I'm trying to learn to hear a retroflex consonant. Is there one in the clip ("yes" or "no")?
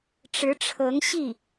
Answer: yes